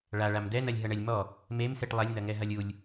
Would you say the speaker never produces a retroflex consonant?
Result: no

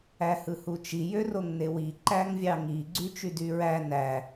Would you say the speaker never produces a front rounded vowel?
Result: no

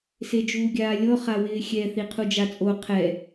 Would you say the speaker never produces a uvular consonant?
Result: no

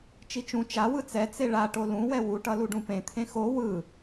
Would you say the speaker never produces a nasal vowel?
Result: no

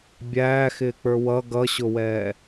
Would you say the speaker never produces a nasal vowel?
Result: yes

